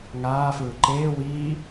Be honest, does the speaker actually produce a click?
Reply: yes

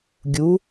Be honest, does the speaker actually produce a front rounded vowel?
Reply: no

